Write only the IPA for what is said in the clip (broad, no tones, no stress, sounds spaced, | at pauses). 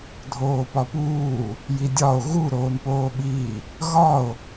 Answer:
dʱ oː p ɒ p uː | j i dʲ ɒ o̯ ɣ u ɾ oː n p oː ɓ iː | ɣ ɒ o̯